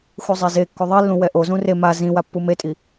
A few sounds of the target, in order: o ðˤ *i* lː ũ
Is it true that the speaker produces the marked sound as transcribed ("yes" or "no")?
yes